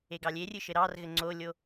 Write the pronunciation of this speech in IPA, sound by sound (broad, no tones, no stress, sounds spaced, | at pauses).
e ɡ ɑ lʲ e rʲ ɨ ʃ ɘ ɾ ɑ r ɣ ɘ ŋ͡ǀ o lʲ o